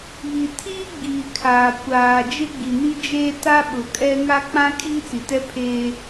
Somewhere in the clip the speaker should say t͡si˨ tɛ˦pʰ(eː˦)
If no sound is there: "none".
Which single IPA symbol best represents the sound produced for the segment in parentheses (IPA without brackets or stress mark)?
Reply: eː˦